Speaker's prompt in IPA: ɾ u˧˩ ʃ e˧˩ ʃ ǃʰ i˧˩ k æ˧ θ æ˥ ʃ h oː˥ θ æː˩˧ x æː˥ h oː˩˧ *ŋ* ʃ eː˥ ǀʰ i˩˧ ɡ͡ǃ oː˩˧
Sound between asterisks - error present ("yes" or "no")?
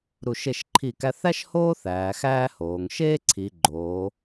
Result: no